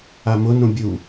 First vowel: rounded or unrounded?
unrounded